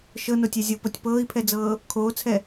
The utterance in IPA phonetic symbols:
ʃ ɤ n o tʲ ɛ zʲ o p ɤ tʲ p ɤː i̯ pʰ ɛ d͡z ɤː | kʰ oː t͡sʰ ɛ

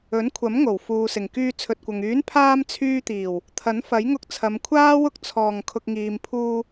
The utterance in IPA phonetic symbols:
ɵ˨˥ n kʷʰ ɐ˨˥ m ŋ o˨˩ w f uː˨ s ɪ˨˩ ŋ k yː˧ t͡sʰ ɵ˨ t̚ kʷ ɐ˨ ŋ yː˨˥ n pʰ aː˧ m t͡sʰ yː˧ t̪ iː˨˩ w | t̪ʰ ɐ˨˥ n f ɐ˨˥ j ŋ ʊ˧ k̚ t͡sʰ ɐ˨˧ m kʷʰ aː˥ w ʊ˥ k̚ t͡sʰ ɔː˨˩ ŋ kʰ ʊ˨ k̚ ŋ iː˨ m pʰ uː˧

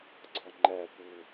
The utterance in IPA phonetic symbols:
ɡ͡ǀ ɒ ŋ͡ǃ æ p u

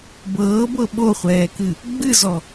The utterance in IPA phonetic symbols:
b ɤː b ɤ ɓ o χʷ ɛː k ɨ | ɡ͡b ɨ z ɔ

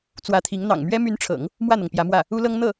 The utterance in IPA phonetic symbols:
t͡s w ä˧˥ t̪ʰ i˧˥ ŋ n̪ ɑ̰˨˩ ŋ m ɥ ɛ˥ m y˧˥ n ʈ͡ʂʰ ɤ̰˨˩˦ ŋ | m w ä˥˩ n̪ ɤ˩ ŋ p j ä˧˥ m w ä˥˩ | u˥ l ɤ˥ ŋ n̪ ɤ˥˩

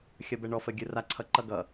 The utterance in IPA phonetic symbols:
xʲ ʌ b ɛ ɳ ɔ f ə ɡʲ ɯ r a ǀʰ ʌ ǃ ʌ ɡ ʌ

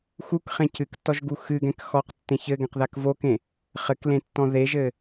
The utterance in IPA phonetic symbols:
x u k χ ẽ c ɨ k tː ɔ ʒ ɡ u x ɨ ɡ ɛ̃ k x ɔ q tː ẽ ç ɘ ɡ ɛ̃ q ð a k v o k ẽ | χ ɘ k l ẽ tː ɔ̃ ð e ʒ ɘ

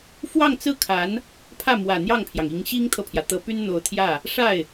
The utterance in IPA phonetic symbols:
f w ɑ˥˧ ŋ t͡s ɹ̩˥˩ kʰ a˧˥ n | pʰ ä˥˩ m w ä˨˩ n̪ j ɑ˥˩ ŋ pʰ j ɑ˩ ŋ i˧˥ ŋ ɕ i˥ ŋ t̪ʰ ɤ˨ pʰ j ä˩ t̪ ɤ˧˥ p y˥ n n̪ o˧˥ ʊ̯ t̪ʰ j ä˥˩ | ʂ a˥˩ ɪ̯

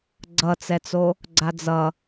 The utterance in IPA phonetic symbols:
ɡ͡ǀ ʌ t͡s ɛ t͡s o | ɡ͡ǀ a d͡z ʌ

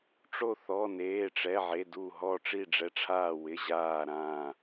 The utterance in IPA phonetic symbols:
ʈ͡ʂ o˧˩ θ ɔ˩˧˩ n eː˩˧˩ ʈ͡ʂ ɛ˩˧˩ ʕ e˩˧˩ d u˧˩ ɦ ɔ˧˩ ʈ͡ʂ i˧˩ ɖ͡ʐ ɛ˩˧˩ ʈ͡ʂʰ aː˧˩ w ɪ˩˧˩ ʑ aː˧˩ ɾ ãː˧˩

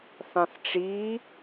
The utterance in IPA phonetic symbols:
θ ɑ̃ θ ʈ͡ʂ i

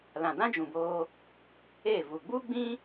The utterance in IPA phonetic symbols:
l ã˨ d ã˦ d͡ʒ ũ˨ b oː˧ | e˦˨ v u˨ ɡ͡b u˦ ɡ͡b ĩ˦

